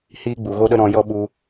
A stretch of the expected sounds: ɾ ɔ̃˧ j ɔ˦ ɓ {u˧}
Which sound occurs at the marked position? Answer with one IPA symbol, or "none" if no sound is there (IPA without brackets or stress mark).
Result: u˧